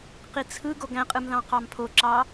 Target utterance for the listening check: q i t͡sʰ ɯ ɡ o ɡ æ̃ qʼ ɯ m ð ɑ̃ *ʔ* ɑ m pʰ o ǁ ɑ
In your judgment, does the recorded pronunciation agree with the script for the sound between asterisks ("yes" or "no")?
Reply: no